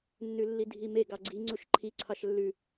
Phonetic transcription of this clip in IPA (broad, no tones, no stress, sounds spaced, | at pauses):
nː ʉ lː i dʱ i m e ɡ ɑ ɡ͡ǀ i ŋ͡ǀ u ʃ ǃʰ i ǀʰ ɑ ʃ lː ʉ